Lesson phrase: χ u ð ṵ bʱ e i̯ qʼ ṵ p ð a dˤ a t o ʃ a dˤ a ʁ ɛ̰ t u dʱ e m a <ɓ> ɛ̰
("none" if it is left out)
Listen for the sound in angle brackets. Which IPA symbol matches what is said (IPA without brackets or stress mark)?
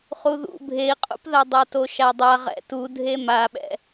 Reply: ɓ